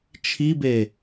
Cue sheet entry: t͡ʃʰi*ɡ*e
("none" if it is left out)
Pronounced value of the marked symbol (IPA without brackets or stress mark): b